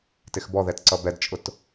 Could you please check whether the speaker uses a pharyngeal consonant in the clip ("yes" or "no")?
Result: no